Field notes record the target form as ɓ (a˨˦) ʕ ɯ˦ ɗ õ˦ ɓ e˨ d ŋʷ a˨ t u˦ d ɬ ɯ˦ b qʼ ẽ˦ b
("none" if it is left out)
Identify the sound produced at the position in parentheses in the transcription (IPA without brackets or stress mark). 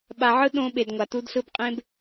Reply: a˨